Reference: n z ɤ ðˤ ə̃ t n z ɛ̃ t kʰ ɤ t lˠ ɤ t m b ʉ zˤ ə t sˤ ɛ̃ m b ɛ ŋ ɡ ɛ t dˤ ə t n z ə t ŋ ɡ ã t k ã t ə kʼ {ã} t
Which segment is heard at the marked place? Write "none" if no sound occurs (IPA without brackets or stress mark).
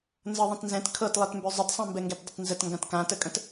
ə̃